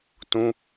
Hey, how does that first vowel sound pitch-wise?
high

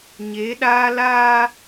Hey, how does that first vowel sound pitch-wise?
rising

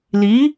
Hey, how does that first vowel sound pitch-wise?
rising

